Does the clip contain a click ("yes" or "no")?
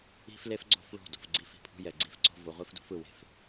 yes